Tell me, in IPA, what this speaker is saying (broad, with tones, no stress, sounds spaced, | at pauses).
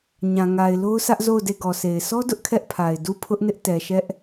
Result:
ɲ ã˨ ŋ a˨ ɪ̯ l o˦ ʊ̯ s ä˦ ʔ z o˦˨ ʊ̯ d e˦˨ ɡ ɔ˨ s e˨ ɪ̯ s ɔ˦ d ʊ˦ ʔ kʰ ɛ˦ ʔ pʰ a˨ ɪ̯ d u˦˨ pʰ ʊ˦ ʔ n ɪ˦ ʔ t ɛ˨ ʃ ɛ˦ ʔ